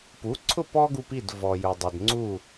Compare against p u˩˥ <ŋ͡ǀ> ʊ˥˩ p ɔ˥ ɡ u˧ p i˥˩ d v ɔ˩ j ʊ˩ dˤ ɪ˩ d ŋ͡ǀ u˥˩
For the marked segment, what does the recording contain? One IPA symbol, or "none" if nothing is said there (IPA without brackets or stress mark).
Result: ǀʰ